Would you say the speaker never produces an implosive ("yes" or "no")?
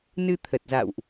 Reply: yes